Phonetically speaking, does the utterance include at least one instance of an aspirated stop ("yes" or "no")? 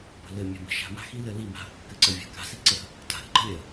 no